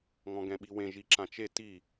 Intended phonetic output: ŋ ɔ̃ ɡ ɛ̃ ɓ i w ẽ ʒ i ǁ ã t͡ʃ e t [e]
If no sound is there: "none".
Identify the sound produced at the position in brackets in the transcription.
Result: i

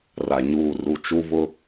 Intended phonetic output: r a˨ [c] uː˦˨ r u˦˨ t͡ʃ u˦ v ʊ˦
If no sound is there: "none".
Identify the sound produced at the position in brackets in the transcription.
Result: ɲ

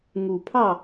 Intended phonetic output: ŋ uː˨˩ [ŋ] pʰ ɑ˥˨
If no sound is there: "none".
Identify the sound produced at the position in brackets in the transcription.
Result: none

